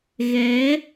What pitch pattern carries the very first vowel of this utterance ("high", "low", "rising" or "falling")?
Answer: rising